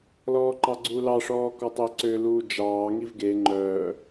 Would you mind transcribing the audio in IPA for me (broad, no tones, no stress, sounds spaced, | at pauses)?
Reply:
l ɔː ǃ ɑ ɡ͡ǀ u l ɑ ʂ ɔː k ɔ tˤ e ǀ ø l uː d͡ʒ ɑː ŋ i v ɡ e ŋ͡ǃ œː